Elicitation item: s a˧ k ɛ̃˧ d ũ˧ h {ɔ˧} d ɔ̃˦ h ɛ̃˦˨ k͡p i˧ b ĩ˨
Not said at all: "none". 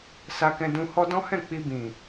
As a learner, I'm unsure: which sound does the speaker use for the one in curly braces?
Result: ɔ˦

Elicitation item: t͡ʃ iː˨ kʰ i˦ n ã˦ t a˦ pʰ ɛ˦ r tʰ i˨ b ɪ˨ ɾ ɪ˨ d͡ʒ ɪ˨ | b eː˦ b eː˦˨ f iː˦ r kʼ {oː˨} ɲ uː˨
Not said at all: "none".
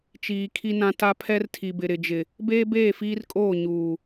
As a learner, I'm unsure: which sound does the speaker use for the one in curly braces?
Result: oː˦˨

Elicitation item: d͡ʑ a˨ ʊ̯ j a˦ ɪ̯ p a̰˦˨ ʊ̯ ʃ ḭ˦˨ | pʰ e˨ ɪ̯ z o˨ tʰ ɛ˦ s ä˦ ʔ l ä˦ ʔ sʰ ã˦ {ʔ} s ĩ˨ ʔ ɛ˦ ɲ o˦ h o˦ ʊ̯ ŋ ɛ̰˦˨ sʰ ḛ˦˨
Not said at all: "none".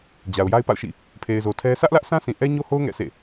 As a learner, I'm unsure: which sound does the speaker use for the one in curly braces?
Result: none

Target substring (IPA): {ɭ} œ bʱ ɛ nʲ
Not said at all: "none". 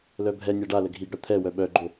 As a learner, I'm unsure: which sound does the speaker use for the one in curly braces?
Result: l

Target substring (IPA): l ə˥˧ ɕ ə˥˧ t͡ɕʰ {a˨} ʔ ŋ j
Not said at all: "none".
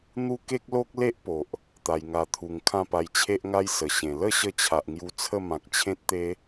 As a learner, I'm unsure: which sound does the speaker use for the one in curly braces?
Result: a˨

